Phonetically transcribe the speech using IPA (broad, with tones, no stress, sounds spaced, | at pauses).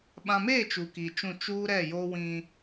ɓ ã˨ m e˦˨ t͡ʃ u˨ k i˨ t͡ʃ ũ˦˨ t͡ʃ uː˦ ɾ ɛ˦˨ j o˦ w ĩ˦